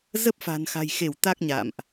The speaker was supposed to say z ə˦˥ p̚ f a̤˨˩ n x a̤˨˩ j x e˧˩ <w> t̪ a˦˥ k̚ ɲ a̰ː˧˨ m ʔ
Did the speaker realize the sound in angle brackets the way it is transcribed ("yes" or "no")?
yes